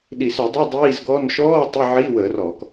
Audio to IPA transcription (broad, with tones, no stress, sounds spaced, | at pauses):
ɗ i˧˩˧ s ʉ˧˩˧ dˤ ʉ˧˥˧ dˤ iː˧˥˧ z ɡ ɔː˧˥˧ n ʃ ɔː˧˥˧ tˤ i˧˥˧ ʕ iː˧˥˧ w əː˧˩˧ r ɔː˧˩˧ k